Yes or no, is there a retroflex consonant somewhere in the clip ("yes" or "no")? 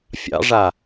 yes